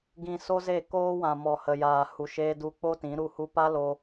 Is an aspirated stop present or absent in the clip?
absent